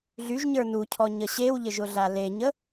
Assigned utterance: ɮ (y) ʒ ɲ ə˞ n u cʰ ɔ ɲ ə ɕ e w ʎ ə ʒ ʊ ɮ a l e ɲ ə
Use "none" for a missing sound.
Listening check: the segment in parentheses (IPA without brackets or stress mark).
y